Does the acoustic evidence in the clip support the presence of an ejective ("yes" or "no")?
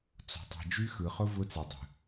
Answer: no